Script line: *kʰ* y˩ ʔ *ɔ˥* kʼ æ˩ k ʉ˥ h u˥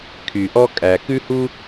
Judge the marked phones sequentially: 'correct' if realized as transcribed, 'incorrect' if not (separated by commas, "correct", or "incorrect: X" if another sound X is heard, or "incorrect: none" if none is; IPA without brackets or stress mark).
correct, correct